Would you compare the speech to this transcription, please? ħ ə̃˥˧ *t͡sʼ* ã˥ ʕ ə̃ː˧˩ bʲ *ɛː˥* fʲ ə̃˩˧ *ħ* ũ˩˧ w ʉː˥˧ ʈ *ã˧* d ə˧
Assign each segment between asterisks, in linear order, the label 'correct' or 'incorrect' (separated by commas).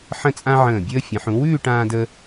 correct, incorrect, correct, incorrect